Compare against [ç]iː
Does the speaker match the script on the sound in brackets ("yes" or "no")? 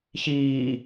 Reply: yes